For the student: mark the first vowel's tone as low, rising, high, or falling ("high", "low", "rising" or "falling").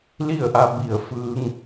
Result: falling